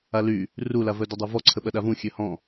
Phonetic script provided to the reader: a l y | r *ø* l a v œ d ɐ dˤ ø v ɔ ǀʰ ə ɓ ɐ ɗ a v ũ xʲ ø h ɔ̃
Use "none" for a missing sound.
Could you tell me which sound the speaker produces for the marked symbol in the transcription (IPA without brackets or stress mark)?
u